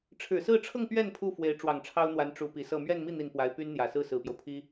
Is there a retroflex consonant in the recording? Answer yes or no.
yes